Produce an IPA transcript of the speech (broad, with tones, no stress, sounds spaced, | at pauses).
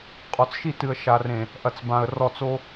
qʼ ɔ˨ t͡s ʃ i˦˨ t ɨ˨ ə̯ ʃ a˨ r ẽ˨ | ʔ ɐ˨ t͡s b ã˨ ə̯ r ɔ˦˨ t͡s o˦